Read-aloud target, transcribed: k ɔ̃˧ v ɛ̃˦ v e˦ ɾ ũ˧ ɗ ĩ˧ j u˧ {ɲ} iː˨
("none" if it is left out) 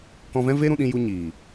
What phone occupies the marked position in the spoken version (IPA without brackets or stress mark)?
ɲ